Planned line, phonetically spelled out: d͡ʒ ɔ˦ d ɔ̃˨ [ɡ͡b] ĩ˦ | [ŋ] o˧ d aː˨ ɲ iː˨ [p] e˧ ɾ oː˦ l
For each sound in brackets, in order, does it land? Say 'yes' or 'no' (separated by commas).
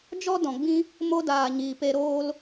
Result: yes, no, yes